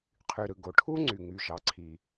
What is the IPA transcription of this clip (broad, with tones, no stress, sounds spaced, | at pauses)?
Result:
qʰ y˩ ɾ ɯ˩ ɡ o˩ ʈʰ u˥ ŋ͡ǀ y˩ ŋ y˩ ʒ ɑ˩ ǀʰ i˩